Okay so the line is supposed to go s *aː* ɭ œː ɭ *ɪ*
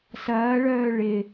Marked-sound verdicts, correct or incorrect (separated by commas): incorrect, correct